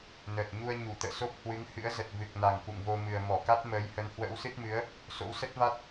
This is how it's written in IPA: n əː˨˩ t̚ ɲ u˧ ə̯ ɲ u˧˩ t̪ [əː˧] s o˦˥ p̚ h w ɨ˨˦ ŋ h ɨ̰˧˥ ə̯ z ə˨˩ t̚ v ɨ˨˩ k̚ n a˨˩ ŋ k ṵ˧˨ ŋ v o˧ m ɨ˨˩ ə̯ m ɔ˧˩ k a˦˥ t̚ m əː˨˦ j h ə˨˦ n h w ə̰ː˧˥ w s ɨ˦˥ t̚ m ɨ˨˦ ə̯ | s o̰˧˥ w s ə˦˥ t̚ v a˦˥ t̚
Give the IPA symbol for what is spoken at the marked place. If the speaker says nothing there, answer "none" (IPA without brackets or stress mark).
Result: ə̰ː˧˨